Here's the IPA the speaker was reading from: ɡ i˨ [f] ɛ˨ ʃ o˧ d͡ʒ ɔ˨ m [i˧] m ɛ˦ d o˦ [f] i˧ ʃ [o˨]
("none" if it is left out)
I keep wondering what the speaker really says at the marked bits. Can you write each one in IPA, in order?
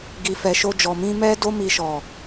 f, ĩ˧, m, ɔ˨

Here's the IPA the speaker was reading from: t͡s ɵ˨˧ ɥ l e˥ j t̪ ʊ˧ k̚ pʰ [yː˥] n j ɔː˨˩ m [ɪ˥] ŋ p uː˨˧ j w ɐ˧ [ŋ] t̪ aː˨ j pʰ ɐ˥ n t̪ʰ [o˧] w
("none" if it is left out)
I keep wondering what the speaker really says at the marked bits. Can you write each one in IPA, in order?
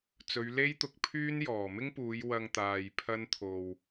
yː˥, ɪ˥, ŋ, o˧

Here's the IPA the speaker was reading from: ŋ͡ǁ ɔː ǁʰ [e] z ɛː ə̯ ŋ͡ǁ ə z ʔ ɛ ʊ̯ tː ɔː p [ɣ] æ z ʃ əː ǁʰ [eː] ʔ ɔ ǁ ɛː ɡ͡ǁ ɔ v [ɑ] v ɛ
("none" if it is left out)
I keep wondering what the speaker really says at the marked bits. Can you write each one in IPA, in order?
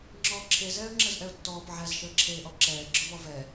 e, ʕ, eː, ɔ

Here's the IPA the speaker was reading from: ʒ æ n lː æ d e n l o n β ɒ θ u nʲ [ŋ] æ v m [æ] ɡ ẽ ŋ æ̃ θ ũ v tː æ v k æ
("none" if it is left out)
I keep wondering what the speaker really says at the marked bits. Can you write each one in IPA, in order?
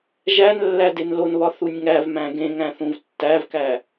ŋ, æ̃

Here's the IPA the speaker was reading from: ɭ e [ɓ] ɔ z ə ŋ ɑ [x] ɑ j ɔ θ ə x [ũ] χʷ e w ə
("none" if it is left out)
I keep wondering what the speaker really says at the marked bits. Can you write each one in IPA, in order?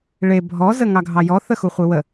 bʱ, ɡʱ, u

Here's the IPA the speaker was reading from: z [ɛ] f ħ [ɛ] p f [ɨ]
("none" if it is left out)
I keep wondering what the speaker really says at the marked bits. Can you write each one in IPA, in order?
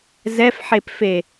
ɛ, e, e

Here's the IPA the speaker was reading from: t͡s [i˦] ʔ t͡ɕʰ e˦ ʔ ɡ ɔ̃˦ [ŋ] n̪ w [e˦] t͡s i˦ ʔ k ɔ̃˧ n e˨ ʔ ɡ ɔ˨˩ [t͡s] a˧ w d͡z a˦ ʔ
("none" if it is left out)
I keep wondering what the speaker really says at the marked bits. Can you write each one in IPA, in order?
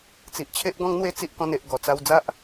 i˨, ŋ, e˦, t͡s

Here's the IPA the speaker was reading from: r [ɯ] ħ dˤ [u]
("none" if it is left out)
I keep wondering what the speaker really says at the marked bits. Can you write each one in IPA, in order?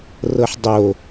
ɤ, o

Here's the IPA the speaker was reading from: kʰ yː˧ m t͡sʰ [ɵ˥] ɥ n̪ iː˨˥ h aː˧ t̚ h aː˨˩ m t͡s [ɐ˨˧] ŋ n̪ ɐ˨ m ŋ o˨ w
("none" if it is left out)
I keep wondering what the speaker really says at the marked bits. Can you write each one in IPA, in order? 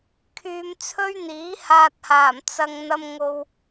ɵ˥, ɐ˨

